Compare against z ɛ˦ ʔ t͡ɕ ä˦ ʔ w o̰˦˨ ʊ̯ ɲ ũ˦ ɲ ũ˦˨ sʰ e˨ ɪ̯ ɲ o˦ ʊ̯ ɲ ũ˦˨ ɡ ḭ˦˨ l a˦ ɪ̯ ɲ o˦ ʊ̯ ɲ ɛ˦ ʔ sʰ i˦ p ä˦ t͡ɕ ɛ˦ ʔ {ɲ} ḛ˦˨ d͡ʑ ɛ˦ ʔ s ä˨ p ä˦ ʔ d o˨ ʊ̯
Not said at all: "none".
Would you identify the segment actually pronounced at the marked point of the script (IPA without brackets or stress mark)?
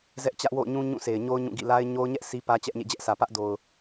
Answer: ɲ